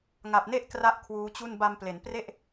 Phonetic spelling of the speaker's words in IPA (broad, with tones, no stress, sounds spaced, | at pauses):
ŋ a˨˩ p̚ n e˥˩ ʔ k r a˥˩ ʔ kʰ w uː˦˥ t͡ɕ u˥˩ n b a˧ m p l e˩˦ n p r e˥˩ ʔ